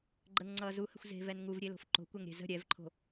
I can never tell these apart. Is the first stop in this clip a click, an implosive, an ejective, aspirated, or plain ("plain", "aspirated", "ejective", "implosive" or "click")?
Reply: click